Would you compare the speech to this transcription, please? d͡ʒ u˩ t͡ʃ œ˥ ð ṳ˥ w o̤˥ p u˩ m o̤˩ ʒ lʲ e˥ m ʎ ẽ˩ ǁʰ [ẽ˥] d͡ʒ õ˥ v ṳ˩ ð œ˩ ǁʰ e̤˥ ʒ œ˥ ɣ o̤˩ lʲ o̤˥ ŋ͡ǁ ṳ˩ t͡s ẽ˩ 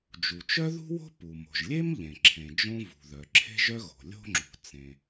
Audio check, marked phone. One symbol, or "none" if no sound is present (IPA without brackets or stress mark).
ẽ˩